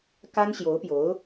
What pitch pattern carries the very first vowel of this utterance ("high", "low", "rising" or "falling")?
high